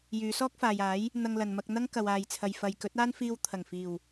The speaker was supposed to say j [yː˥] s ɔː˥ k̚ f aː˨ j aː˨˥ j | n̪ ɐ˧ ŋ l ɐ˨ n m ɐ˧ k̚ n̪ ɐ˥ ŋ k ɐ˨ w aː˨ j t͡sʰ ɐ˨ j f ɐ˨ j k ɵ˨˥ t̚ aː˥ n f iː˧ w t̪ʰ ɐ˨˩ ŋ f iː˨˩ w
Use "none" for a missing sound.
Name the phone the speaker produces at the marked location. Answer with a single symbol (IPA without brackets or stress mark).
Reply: yː˨˧